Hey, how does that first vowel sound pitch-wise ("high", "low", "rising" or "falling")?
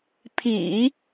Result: low